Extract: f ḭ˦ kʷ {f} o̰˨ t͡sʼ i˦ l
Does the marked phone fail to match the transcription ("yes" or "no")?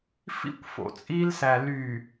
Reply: no